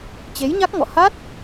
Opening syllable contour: rising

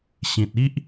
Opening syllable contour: low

